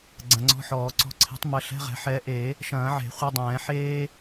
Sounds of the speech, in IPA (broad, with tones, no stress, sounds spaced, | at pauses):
ɡ͡ǀ ɐ̃˨˦ ŋ͡ǀ ɔ̤˧˥˧ ħ ɔː˨˩˦ ǀ ɔ̤˨˦ ǀʰ e̤˨˦ tˤ m ɐ˨˦ ɬ ɛ̤˧˥˧ ʁ ɛ̤˨˦ ħ ɛ˨˦ ʔ e˨˩˦ | ʃ ɐ̃ː˨˩˦ ʕ e̤˨˩˦ χʷ ɐ˧˥˧ dˤ ɛ̃ː˨˩˦ ħ eː˥